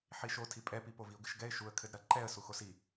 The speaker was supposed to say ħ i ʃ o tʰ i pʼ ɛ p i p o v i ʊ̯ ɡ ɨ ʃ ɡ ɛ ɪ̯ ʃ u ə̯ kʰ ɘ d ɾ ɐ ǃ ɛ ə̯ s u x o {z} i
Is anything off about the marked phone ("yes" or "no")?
yes